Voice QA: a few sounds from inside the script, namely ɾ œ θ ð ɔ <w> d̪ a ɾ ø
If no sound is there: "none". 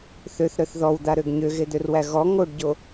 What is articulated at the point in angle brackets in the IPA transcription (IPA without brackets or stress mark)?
w